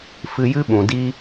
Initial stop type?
implosive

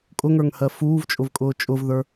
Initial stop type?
ejective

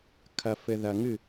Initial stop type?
aspirated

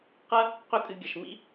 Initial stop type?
plain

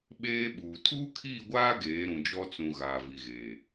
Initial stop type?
implosive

